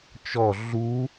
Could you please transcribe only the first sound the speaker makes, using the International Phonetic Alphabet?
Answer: t͡ʃ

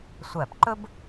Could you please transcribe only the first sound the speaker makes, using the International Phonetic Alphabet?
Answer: sʷ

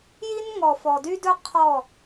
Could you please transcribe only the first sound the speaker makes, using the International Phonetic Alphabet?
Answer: j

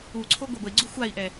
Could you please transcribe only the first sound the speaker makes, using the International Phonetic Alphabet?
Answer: u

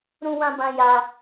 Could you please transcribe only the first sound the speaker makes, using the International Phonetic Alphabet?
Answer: ɾ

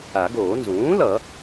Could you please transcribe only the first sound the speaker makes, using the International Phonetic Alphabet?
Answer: a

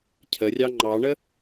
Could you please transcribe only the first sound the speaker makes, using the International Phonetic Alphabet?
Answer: cʰ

